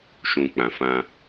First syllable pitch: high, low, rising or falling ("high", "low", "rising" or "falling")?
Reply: low